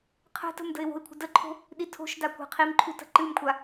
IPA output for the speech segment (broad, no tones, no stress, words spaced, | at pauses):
qʰə̤tə̤m də̤ɪ̯wo̤ɪ̯kʷʰə̤ dəǃʰo̤ | ɗitʰo̤ʃda kʷa̤qʰimǃʰu tə̤ǃɨmkʷʰa